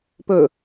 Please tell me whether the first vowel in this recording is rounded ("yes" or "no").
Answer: yes